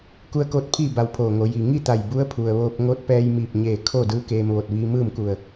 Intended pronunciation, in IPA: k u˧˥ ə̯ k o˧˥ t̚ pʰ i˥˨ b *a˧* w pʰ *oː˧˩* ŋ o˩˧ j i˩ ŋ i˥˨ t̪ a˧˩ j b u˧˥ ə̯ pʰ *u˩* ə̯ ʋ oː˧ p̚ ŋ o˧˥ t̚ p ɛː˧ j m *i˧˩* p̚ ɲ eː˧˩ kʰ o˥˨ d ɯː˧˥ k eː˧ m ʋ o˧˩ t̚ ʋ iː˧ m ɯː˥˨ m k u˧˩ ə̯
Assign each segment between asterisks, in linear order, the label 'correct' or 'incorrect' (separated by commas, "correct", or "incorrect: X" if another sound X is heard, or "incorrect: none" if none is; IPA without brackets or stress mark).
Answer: correct, correct, correct, incorrect: iː˧˩